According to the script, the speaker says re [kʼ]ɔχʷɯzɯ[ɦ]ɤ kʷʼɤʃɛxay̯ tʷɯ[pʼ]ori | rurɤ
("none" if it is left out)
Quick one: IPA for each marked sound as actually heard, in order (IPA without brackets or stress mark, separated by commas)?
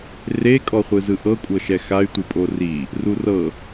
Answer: kʼ, ʔ, pʼ